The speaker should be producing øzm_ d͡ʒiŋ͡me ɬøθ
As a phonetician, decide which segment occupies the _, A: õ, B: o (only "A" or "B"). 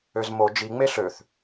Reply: B